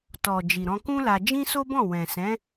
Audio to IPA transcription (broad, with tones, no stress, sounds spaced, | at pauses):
t ɔ˨ d͡ʒ i˨ ɾ ɔ̃˧ k ũ˦ l a˧ d͡ʒ ĩ˦ s o˦ b ɔ̃˦˨ w ɛ̃˨ s ɛ̃˨˦